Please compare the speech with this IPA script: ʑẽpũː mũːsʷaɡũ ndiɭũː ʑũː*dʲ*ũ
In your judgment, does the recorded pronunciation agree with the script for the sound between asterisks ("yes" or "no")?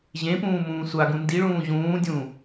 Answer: yes